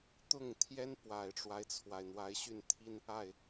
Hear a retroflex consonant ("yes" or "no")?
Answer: yes